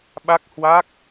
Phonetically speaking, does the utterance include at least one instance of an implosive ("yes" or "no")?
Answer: yes